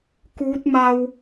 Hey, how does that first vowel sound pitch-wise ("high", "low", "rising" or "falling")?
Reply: rising